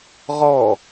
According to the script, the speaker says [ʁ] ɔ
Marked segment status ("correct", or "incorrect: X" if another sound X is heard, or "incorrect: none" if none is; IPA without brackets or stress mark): correct